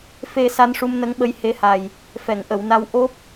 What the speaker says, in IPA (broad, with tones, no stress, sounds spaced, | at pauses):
f e˨˩ s a˧ n ʂ u˧ m n ə˧˥ ŋ ɓ ə˧˥ j h e˧˥ h a˨˩ j | f ɛ˨˩˨ ŋ ʔ ə˨˩˨ w n a˧ w ʔ o˦˥ p̚